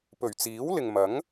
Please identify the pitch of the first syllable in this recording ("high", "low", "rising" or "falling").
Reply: low